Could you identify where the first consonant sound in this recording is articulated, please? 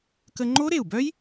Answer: velar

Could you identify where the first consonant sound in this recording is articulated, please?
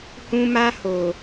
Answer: glottal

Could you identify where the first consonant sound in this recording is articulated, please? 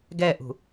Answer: velar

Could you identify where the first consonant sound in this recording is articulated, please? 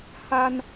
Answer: glottal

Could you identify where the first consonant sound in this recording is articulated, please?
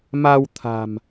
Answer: labial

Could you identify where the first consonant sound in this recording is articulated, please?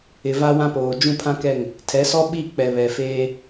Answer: labial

